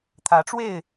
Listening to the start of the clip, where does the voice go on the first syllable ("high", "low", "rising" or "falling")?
rising